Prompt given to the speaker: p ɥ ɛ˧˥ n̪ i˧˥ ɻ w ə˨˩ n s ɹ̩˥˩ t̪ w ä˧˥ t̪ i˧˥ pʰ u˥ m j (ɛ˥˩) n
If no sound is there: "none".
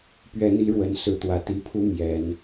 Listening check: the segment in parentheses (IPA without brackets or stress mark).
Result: ɛ˨˩˦